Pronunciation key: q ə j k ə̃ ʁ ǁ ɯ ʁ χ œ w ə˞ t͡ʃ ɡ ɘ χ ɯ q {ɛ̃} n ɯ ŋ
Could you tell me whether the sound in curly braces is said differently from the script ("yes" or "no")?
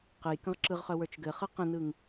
yes